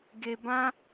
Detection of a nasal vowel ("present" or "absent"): present